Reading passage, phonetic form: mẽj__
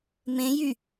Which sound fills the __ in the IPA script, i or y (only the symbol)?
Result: y